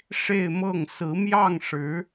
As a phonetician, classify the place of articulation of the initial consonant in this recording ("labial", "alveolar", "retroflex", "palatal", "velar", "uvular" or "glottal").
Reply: retroflex